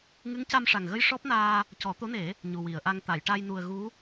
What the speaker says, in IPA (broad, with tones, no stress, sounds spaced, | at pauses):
ŋ ɨ˧˥ ŋ c a˧ m ʂ a˨˩ ŋ ɣ ə˧ j ʂ ɔ˦˥ p̚ n aː˧ | c ɔ˨˩˦ t̪ o˧˥ n e˨˩˦ | ɲ u˨˩ w i˨˩˨ ə̯ ʔ a˧ ŋ t̪ a˨˩˨ j ʈ a˧ j n u˨˩ ə̯ ɣ u˧˥